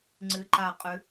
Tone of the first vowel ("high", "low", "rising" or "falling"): rising